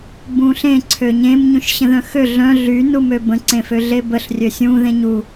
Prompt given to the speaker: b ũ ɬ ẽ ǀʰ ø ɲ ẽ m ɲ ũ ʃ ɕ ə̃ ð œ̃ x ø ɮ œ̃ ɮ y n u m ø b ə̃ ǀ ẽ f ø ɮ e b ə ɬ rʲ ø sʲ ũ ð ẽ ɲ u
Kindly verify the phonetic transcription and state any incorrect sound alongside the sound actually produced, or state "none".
none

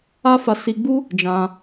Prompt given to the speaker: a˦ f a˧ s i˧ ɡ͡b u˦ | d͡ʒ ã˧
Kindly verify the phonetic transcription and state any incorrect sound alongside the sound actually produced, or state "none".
none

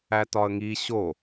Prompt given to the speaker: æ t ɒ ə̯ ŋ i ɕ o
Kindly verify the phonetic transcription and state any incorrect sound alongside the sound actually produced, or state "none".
none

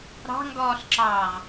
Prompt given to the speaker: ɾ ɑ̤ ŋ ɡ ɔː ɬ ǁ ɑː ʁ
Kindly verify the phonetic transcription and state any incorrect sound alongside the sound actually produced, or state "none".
none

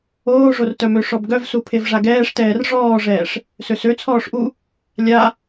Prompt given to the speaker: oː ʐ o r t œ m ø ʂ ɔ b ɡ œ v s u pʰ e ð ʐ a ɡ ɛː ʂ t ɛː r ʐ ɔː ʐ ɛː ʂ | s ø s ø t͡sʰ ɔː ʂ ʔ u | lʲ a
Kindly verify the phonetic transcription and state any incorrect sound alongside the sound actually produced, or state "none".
ð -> v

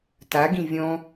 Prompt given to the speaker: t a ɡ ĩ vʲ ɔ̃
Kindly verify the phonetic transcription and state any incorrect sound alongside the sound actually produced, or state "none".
none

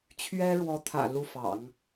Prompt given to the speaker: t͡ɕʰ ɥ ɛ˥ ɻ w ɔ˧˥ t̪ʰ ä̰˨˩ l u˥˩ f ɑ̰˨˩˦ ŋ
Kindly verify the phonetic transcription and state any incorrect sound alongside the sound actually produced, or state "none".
none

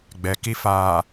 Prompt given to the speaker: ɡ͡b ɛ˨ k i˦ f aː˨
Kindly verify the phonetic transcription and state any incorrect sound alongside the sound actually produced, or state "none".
none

